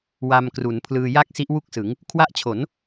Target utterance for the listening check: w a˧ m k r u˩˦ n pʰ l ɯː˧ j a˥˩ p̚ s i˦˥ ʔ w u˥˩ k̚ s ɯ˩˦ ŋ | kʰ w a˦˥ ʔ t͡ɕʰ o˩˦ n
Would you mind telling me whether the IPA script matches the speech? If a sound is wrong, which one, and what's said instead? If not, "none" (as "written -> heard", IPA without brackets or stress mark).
p̚ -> k̚